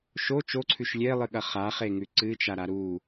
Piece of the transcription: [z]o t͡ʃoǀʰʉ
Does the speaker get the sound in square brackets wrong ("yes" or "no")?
yes